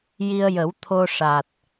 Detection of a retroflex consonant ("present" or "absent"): present